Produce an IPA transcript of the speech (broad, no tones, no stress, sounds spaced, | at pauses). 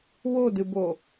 w o d ɨ b o